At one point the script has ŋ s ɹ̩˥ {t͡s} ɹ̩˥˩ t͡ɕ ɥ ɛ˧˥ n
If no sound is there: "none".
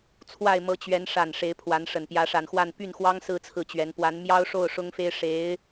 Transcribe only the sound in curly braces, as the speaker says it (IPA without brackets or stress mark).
t͡sʰ